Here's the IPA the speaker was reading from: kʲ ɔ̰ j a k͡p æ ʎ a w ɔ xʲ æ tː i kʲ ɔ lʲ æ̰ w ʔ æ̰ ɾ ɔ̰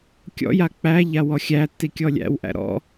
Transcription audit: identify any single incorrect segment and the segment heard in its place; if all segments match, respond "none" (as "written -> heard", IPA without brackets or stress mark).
none